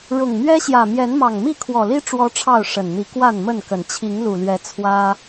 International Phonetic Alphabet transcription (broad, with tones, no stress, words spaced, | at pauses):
ɻʊ˨˩ŋmɥɛ˦ɕjä˨˩ mjɛ˨˦nmɑ˨˩ŋmi˥˨ kʰwɔ˨˩li˦ ʈ͡ʂwɔ˦ʈ͡ʂʰɑ˥˨ʊ̯ ʂə˨˩nn̪i˨˦ kwa˥˨nmə˥˨nkə˨˩n t͡ɕʰi˨˦ŋlu˨˩lɥɛ˨˦ t͡sʰwä˦